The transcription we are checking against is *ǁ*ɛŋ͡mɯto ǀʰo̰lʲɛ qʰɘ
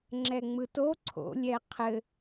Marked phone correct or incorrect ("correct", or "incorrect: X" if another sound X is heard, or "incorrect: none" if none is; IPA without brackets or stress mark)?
incorrect: ŋ͡ǁ